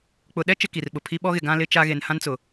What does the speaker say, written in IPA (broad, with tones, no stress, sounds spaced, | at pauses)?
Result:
k͡p ʊ˨ ɗ ɛ˦ t͡ʃ ɪ˦ k i˨ r ɓ ʊ˨ pʰ i˦ ɓ ɔ˦ ɣ ɪ˨ ɡ ã˦ l ɪ˦ t͡ʃ a˦ ɣ e˨ n h ã˦ n t͡s ʊ˨